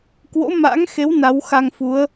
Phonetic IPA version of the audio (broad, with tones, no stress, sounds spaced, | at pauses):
k w o̰˧˥ m a̰ː˧˥ ŋ x e˨˦ w n a˨˦ w x a˧ ŋ f u˨˦ ə̯